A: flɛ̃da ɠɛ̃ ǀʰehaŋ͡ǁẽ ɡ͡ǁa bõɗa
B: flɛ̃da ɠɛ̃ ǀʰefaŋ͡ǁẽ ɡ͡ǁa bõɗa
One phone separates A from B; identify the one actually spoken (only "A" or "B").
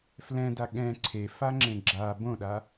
B